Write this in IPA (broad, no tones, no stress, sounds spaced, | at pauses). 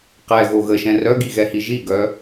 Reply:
q ɛ ɣ o ɣ ə ʃ ɛ̃ r œ ɡ i ɣ ɛ h i ʒ i ɡ œ